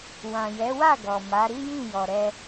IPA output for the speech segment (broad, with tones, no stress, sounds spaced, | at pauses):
w ã˨ j ɛ˨˦ w a˦˨ ɡ ɔ˨ m a˨˦ ɾ i˦ j ĩ˦˨ j ɔ˨ ɾ ɛ˧